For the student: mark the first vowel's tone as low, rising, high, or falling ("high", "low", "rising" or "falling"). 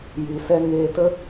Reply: low